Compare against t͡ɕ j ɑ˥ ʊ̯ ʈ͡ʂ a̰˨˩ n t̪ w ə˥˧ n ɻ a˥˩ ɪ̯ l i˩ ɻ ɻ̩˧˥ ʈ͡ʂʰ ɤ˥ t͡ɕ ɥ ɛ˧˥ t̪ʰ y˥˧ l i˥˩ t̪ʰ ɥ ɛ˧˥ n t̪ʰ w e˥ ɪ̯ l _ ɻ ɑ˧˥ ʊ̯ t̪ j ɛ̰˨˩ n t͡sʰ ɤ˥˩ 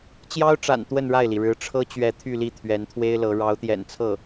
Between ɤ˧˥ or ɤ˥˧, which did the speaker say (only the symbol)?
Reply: ɤ˧˥